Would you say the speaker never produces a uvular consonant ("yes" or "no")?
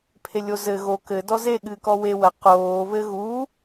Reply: no